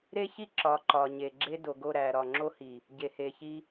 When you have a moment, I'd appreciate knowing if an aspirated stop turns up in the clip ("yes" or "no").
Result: no